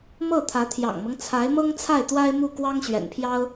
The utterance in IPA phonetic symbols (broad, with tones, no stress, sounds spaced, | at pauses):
m ɤ˥˩ t̪ʰ ä˧˥ t̪ʰ j ɑ̰˨˩ ŋ m ɤ˦ ŋ t͡sʰ a˧˥ ɪ̯ m ɤ˥ ŋ t͡sʰ a˥˩ ɪ̯ t̪ w a˥ ɪ̯ m u˥˩ k w ɑ˥ ŋ ɕ ɥ ɛ̰˨˩ n pʰ j ɑ˥ ʊ̯